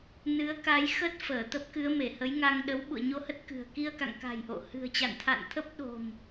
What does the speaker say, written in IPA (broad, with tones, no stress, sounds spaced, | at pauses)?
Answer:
n ɨ˨˦ ə̯ k a˨˦ j x ə˦˥ t̚ f əː˧˩ t̪ ə˦˥ p̚ k ɨ˨˦ ə̯ m e˧˩ h ə˨˦ j ŋ a˧ ŋ ɗ ə˨˦ w ɓ ṵ˧˨ ə̯ ɲ o˧ h ə˦˥ t̚ k ɨ̤˨˩ ə̯ k i˧ ə̯ k a̰˧˨ ŋ k a̤˨˩ j ʔ o̰˧˨ h ɨ̤˨˩ ə̯ t͡ɕ a̰˧˨ n t̪ʰ a̰˧˨ n t̪ʰ ə˦˥ p̚ ɗ o̤˨˩ m